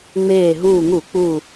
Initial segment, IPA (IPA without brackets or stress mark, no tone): ŋ͡m